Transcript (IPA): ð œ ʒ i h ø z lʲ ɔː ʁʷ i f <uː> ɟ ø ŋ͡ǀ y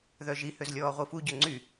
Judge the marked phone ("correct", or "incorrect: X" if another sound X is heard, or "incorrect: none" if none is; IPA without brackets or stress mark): incorrect: u